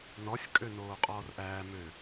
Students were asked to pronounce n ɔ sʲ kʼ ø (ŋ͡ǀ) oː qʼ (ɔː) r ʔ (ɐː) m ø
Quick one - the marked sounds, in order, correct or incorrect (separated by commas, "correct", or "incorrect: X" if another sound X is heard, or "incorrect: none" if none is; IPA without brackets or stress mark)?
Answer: incorrect: n, correct, incorrect: æː